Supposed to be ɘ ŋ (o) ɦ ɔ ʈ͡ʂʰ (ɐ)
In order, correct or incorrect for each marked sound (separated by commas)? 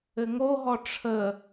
correct, incorrect